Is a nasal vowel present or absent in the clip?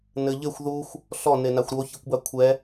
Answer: absent